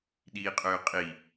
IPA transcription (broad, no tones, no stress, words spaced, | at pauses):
ɗiːqʼøːqʼi